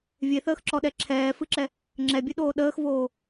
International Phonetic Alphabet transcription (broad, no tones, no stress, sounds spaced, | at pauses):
vʲ e θ əː x ǁ ɔ ɗ ɛ ǁʰ ɛː f ɨ ǁ ɛ | ŋ͡ǁ ɛ bʲ ɨ ɗ oː ɗ əː x v oː